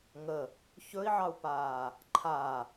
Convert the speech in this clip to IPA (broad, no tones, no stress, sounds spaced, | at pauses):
ŋ ə | ç ɵ i̯ ʕ ɑ u̯ p aː | ǃʰ a